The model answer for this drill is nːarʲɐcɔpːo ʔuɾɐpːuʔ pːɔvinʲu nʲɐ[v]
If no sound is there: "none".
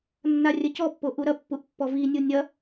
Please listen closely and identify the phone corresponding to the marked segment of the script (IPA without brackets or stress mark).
none